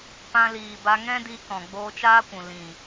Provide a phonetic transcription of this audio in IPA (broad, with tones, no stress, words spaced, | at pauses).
pã˧liː˨ba˧ ŋɛ̃˦di˧kɔ̃˨ ɡ͡boː˧t͡ʃaː˦kʷũ˨ lĩ˨